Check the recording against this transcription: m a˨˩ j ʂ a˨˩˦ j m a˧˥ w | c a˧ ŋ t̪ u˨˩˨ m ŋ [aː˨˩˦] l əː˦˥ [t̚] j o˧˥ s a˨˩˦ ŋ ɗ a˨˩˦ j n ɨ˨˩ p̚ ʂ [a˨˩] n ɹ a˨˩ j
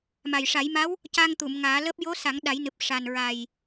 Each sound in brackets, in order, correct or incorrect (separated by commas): correct, incorrect, correct